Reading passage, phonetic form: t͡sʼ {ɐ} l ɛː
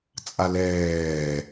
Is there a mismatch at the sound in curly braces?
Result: yes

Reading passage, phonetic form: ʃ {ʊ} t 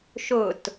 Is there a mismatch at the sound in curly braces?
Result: no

